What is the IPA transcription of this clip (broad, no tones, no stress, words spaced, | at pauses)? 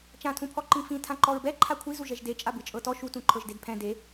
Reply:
t͡ʃãtʰũpʰɔ ǃĩfĩ tʰãǃɔɹbɛ ǃʰakʷʰizu ʒɛʒde t͡ʃʼabɯt͡ʃʼɤtɔ ʃutũǃʰɤʒded pʰɛ̃ de